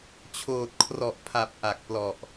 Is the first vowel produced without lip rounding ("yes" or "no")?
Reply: no